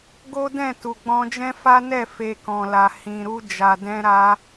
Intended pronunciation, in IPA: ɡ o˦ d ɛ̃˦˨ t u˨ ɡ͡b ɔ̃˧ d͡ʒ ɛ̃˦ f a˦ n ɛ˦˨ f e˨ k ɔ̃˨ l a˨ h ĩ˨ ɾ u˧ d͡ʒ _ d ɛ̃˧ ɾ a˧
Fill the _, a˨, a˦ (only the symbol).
a˨